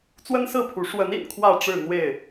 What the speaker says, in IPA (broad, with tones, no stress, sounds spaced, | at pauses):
t͡s w ə˦ n s ɹ̩˥˨ pʰ u˨˦ ʂ w ə˨˦ n ḭ˨˩ n kʰ w ä˥˨ ʈ͡ʂ ɻ̩˥˨ n̪ w e˥˨ ɪ̯